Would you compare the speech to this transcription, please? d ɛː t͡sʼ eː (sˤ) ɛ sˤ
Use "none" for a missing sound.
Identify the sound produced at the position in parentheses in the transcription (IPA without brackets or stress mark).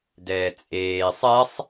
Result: sˤ